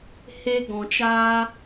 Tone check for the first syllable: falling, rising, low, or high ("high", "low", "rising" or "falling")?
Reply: high